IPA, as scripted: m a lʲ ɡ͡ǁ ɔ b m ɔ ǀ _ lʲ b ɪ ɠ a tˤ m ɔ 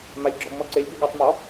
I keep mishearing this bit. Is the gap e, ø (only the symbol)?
e